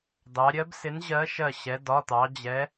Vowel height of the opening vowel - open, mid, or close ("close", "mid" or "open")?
open